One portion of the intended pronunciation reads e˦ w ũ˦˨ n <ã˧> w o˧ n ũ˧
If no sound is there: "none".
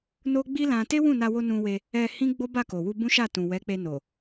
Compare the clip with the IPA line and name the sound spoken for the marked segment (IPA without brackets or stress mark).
a˧